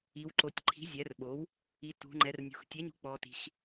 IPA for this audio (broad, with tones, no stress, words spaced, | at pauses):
i˩˧wǃo˩˧tʲǃʰi̤˩˥ zʲɛ˩˥rɓo˩˥w | i˩˧ tṳ˩˧ ŋ͡ǃɛ˩˧rnʲṳ˩˧x tʲɛ˩˥ɲṳ˩˥ k͡pɔ˩˧ti̤˩˧x